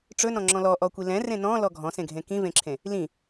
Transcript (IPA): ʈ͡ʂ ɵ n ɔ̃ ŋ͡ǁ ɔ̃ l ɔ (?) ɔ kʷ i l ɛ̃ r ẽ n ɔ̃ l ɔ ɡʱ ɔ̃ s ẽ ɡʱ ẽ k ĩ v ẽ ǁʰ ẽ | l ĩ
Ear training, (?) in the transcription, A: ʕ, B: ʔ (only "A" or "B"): B